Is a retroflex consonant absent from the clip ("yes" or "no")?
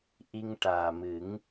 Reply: no